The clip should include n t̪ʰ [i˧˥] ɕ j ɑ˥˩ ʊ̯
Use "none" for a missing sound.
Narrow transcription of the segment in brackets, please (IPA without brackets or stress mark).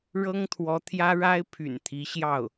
i˧˥